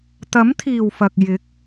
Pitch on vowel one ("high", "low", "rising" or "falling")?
rising